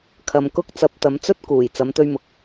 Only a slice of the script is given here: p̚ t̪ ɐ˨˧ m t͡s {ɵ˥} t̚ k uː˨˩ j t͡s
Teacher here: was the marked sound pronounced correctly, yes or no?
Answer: yes